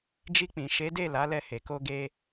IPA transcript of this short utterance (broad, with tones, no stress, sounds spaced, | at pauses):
d͡ʒ i˧ k͡p ĩ˨ ʃ e˨˦ d e˦˨ l a˨˦ l ɛ˧ h e˨ k o˧ ɡ e˧